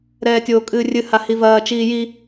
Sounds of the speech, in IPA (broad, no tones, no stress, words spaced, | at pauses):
ɾɛːtʲoːkʼɨːrʲɨ hahivɐː t͡ʃiːji